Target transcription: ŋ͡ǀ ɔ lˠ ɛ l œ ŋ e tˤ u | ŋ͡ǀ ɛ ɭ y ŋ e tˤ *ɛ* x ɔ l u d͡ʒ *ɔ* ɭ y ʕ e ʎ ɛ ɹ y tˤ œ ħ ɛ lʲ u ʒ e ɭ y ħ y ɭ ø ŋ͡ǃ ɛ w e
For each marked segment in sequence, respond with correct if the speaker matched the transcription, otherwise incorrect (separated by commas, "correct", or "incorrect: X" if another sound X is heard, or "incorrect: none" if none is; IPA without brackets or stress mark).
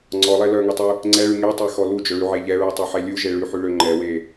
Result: correct, incorrect: ɵ